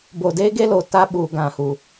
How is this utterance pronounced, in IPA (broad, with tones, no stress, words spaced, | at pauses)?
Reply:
bo˨deː˦ɡe˦ lo˨ta˦ɓuː˨ ɡã˨hu˨